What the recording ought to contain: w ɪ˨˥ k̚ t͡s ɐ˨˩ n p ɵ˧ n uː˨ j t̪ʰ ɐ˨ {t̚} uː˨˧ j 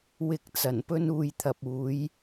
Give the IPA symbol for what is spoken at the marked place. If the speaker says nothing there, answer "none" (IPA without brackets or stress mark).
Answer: p̚